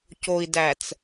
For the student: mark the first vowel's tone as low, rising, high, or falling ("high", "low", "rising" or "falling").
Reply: low